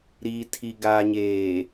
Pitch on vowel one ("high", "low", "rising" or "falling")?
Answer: low